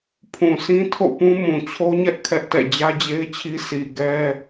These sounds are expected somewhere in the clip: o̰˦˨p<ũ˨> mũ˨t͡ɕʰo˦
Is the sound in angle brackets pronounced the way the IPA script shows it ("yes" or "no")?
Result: no